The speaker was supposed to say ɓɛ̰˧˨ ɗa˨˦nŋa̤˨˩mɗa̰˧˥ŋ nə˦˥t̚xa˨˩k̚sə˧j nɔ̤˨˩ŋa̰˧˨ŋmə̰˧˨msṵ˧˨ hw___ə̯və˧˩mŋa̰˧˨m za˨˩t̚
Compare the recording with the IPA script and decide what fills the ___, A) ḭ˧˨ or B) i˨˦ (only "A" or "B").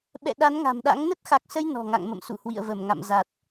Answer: A